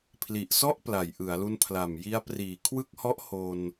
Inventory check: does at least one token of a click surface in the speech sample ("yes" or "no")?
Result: no